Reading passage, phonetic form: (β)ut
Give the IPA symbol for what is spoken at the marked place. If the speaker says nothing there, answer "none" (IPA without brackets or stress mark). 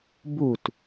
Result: b